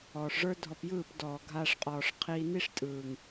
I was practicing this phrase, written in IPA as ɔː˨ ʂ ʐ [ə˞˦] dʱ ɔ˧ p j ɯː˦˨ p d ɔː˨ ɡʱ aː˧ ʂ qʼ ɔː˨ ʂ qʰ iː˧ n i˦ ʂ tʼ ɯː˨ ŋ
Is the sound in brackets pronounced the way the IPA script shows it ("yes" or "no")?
yes